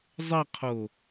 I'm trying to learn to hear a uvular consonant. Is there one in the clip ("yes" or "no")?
yes